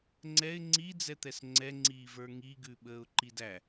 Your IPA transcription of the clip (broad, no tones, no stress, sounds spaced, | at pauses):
ŋ͡ǀ ɛ ɪ̯ ŋ͡ǀ i d͡z ɛ t̪ ɛ s ŋ͡ǀ ɛ ŋ͡ǀ iː v ə˞ ŋ i ɡ ʉ ɓ əː ʊ̯ ǃ i d æ